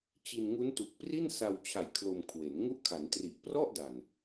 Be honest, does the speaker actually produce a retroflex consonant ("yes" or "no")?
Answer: no